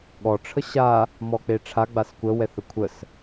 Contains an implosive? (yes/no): yes